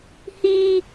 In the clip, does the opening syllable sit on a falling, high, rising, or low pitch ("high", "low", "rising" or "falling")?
high